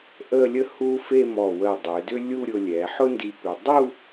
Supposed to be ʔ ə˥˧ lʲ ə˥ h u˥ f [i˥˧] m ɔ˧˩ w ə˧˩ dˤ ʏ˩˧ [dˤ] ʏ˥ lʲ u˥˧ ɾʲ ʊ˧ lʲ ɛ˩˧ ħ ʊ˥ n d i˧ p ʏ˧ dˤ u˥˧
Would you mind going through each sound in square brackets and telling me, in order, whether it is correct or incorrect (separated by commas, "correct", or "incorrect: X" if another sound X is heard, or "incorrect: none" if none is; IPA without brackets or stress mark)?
incorrect: e˥˧, incorrect: d